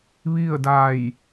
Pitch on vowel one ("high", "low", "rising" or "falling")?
falling